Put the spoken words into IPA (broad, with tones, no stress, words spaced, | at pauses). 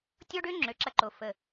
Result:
tʲɔ˦ɖø˦ŋ͡ǁø˨ ǁɐ˦ǃo˨ fə˨